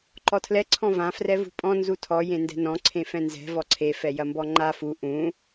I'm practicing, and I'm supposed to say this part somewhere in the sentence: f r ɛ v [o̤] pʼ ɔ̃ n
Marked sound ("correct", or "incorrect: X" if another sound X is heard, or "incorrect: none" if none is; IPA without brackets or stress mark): incorrect: ṳ